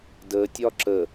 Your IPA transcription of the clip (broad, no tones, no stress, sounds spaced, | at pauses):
d ə tʲ ɒ ǁ ə